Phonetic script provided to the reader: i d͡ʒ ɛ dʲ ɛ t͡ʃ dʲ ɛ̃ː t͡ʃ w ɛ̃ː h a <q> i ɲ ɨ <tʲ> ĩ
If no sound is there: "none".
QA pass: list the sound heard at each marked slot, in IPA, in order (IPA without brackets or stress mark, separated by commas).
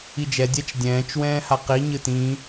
q, t